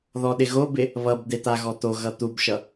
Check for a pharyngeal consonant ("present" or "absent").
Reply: absent